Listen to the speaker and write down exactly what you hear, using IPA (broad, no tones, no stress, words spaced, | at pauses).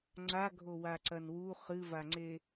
ŋ͡ǀa ɡʱowaǀɐnwu χɨvaŋ͡ǀe